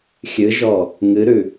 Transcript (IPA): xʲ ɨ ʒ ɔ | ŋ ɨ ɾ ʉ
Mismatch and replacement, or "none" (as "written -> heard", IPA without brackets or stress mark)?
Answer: none